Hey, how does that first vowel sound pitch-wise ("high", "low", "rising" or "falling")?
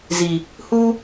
low